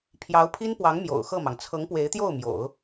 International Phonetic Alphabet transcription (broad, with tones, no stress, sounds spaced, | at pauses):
pʰ j ɑ˧˥ ʊ̯ pʰ i˥ n p w ɑ˧˥ ŋ m j o̰˨˩ ʊ̯ x ɤ˥˩ m ɑ˩ ŋ t͡sʰ ɤ˧˥ ŋ p w e˧˥ ɪ̯ t̪ j o˥˩ ʊ̯ m j o̰˨˩˦ ʊ̯